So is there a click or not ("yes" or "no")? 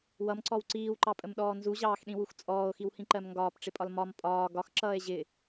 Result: yes